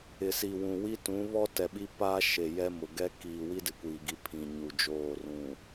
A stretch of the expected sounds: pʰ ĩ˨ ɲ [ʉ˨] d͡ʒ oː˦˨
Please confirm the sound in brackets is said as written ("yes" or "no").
no